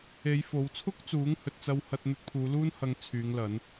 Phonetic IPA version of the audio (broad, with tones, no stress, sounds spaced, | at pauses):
e˨˧ j f o˨˧ w t͡sʰ ʊ˥ k̚ t͡s uː˨˥ ŋ h ɵ˨ t̚ t͡s ɐ˧ w h ɐ˧ t̚ n̪ ɵ˧ t̚ pʰ uː˨˧ l uː˥ n h ɐ˧ ŋ t͡sʰ yː˨˧ ŋ l ɐ˨˧ n